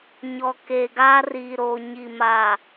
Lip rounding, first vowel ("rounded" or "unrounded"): rounded